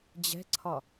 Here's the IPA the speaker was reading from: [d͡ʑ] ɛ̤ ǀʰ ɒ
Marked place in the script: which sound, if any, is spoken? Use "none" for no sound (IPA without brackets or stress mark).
d͡ʑ